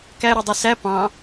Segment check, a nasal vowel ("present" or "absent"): present